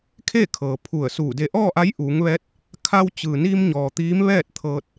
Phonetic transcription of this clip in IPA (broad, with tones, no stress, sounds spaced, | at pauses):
kʰ e˥˨ kʰ ɤː˩ pʰ u˧˩ ə̯ s uː˧˩ d e˧ ʔ ɔː˥˨ ʔ a˧˥ j ʔ uː˩˧ ŋ ʋ ɛː˧˥ t̚ | kʰ a˧ w t͡ɕ ɯː˩ n iː˧ m ɲ ɔː˩ t̪ iː˧˥ m ʋ ɛː˥˨ t̚ t̪ʰ ɤː˧ t̚